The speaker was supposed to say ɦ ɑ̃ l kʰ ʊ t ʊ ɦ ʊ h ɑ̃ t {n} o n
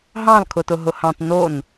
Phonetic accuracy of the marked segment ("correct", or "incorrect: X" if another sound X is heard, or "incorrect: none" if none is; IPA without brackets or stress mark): correct